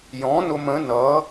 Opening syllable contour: rising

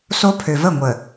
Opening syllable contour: high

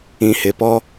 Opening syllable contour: low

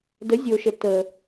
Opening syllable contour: rising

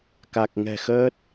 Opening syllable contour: low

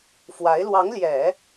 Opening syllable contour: rising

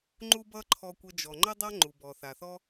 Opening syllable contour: high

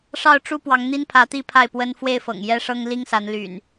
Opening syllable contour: falling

